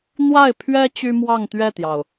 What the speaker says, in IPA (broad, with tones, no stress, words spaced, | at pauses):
n̪wa˥˩ɪ̯pʰɥɛ˥ t͡ɕy˥mwɑ˥˧ŋt̪ɥɛ˥˩t̪jɑ˩ʊ̯